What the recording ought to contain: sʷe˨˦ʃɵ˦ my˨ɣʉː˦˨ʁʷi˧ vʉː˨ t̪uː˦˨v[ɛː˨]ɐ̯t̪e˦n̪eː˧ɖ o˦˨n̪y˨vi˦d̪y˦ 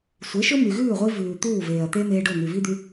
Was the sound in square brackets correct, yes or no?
no